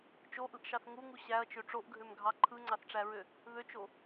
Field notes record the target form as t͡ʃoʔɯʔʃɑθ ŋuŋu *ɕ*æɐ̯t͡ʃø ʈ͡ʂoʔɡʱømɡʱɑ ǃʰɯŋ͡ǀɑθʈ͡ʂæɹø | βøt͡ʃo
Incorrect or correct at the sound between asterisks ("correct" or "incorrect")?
correct